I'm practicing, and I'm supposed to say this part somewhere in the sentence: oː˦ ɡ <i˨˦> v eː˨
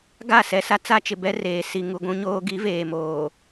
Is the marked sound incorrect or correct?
correct